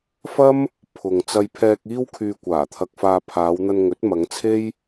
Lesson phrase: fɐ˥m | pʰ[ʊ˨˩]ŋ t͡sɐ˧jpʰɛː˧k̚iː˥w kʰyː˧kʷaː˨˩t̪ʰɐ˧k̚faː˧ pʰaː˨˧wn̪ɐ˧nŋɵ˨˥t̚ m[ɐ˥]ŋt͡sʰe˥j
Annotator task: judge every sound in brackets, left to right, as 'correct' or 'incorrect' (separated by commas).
incorrect, incorrect